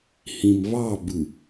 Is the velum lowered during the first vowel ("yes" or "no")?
yes